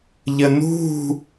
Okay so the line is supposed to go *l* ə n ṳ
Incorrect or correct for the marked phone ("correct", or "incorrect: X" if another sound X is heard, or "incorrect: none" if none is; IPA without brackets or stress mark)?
incorrect: ʎ